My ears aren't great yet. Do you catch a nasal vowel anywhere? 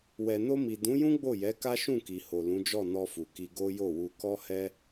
yes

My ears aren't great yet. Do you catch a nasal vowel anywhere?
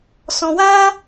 yes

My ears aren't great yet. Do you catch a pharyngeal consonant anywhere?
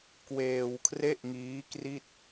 no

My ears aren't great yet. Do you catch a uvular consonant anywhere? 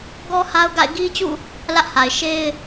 no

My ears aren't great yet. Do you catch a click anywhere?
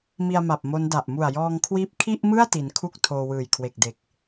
no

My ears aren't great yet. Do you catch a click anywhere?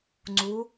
yes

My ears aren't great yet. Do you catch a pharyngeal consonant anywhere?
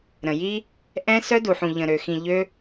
yes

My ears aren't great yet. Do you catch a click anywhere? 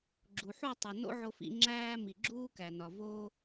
yes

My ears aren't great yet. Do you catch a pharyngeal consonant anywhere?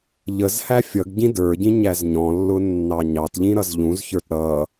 no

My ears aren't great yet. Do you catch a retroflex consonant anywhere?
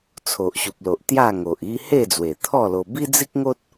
no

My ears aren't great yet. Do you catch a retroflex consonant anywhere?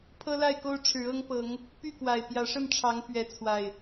yes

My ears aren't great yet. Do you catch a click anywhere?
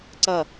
yes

